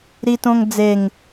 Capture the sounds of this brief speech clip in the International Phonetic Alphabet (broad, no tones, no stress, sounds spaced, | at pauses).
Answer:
ɾ i t õ ŋ d͡z e ŋ